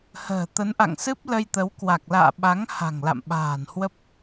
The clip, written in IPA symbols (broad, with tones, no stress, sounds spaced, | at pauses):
h ə̤ː˨˩ t̪ ə˨˦ n ʔ a̰˧˨ ŋ s ɨ˦˥ p̚ l ə˧ j t̪ ə˨˦ w k w a˨˩ k̚ l a̰ː˧˨ ɓ a˨˦ ŋ h a̤˨˩ ŋ l a̰˧˨ m ɓ a̤ː˨˩ n h w ə˦˥ p̚